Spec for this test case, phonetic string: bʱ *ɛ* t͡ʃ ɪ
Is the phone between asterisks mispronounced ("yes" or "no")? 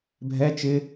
no